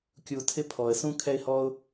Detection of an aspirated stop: present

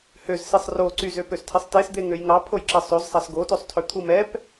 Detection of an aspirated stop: present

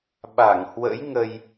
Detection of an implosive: present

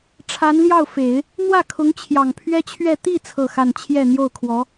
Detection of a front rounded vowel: absent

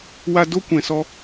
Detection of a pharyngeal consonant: absent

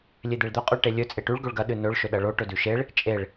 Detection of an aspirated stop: absent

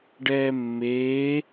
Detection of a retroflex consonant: present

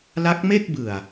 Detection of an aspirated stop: absent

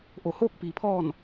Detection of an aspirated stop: present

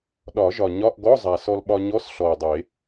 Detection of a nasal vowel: absent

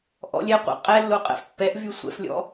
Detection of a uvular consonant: present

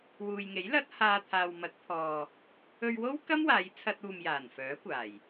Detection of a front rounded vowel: present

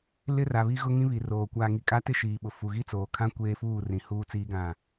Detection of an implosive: present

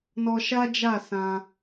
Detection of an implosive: absent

